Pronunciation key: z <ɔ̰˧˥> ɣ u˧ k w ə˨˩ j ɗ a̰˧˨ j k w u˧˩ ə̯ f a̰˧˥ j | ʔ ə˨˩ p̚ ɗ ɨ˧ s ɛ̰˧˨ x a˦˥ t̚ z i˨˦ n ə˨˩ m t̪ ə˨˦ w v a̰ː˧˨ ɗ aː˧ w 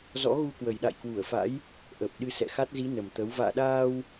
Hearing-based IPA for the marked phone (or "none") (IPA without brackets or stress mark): ɔ̰˧˥